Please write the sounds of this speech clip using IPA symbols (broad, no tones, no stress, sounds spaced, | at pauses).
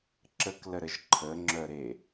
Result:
ǁ ə k l ə ɾ ə ʒ ǃʰ ə ŋ͡ǁ œ ɾ e